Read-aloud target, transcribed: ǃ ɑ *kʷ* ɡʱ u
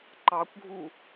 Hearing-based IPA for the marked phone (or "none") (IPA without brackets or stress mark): kʷ